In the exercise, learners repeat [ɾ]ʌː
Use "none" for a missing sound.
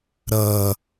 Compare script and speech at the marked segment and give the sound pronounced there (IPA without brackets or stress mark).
ɾ